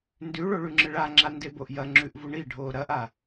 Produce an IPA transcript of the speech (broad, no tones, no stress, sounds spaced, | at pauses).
n d ʉ ɭ o ɭ ʉ ŋ͡ǁ ɨ ɭ a ŋ͡ǁ a n d e b o ʔ j ɐ ŋ͡ǁ ʉ ʔ v u ɳ i ɖʱ oː ɾ ɐ ʔ a